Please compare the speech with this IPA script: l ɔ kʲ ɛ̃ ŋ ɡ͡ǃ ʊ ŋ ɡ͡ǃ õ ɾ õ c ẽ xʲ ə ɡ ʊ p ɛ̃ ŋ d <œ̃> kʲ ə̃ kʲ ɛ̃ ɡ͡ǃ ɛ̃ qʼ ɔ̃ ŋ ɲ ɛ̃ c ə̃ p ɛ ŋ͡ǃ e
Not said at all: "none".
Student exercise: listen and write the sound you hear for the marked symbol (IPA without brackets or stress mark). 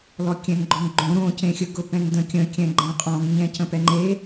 ə̃